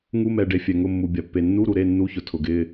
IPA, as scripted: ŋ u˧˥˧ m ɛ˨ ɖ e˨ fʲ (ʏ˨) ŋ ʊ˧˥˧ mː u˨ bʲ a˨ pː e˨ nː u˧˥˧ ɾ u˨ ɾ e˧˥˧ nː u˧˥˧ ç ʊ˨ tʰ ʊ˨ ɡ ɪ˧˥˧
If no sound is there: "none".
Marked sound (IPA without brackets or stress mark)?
ɛ˨